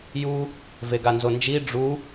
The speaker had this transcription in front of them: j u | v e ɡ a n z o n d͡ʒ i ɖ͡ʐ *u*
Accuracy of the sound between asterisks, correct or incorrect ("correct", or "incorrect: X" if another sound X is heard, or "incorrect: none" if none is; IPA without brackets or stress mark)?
correct